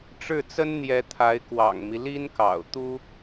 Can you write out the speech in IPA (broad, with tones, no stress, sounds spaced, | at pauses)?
ʈ͡ʂ ɻ̩˥˩ t͡s ə˥ n n̪ j ɛ˧˥ t̪ʰ a˧˥ ɪ̯ k w ɑ̰˨˩ ŋ m i˦ l i˥ n k ɑ̰˨˩ ʊ̯ t̪ u˥